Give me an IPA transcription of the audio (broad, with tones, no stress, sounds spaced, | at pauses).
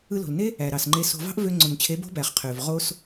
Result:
ɯ˧ l o̤˨ l n e˦ | æ˨ ɾ ɑ˨ s ŋ͡ǃ e˧ s o̤˧ v ɑ̤˦ ʔ v ø˧ ŋ͡ǀ o˨ n t͡ɕʰ e˨˦ b o̤˦ b æ˨ χ qʰ ø˨ v ʁ o˧ s